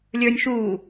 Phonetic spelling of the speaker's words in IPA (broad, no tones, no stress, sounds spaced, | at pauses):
lʲ ə˞ nʲ ʃ uː